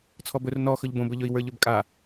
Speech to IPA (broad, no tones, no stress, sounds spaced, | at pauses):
t͡sʰ ɔ b ɵ r n ɔ x ɵ ʎ b õ b ɵ ʎ ɵ i̯ w ə˞ ʎ ɵ b kʼ a